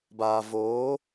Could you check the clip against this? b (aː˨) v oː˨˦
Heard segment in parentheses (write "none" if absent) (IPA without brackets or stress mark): aː˨